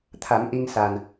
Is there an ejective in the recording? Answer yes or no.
no